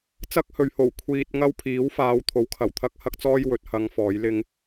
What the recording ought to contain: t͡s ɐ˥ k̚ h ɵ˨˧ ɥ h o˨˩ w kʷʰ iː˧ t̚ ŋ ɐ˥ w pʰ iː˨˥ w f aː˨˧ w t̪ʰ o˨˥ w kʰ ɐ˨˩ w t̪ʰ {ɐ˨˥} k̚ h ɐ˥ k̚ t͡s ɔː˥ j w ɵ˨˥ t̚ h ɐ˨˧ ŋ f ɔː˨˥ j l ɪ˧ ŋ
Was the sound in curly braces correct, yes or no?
no